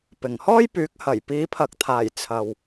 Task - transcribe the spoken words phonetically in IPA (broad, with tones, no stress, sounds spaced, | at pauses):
p ɪ˨˩ ŋ h ɔː˥ j p yː˨˥ k̚ h ɐ˨˩ j p iː˨˧ pʰ ɐ˨˥ k̚ t̪ʰ aː˨˩ j t͡sʰ ɐ˨ w